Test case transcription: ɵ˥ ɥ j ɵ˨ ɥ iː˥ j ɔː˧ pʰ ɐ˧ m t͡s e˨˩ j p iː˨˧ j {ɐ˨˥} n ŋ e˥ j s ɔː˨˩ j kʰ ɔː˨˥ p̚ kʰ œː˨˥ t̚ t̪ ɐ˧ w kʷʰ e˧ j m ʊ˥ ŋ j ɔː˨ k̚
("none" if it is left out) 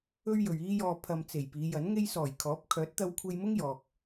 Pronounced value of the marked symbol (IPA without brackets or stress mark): ɐ˨˥